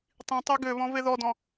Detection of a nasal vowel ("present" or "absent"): present